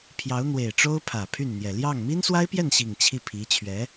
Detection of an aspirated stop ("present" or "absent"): present